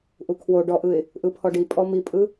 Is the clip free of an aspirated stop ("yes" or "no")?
no